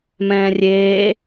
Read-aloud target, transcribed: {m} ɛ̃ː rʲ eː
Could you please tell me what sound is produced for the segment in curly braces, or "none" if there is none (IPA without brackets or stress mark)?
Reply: m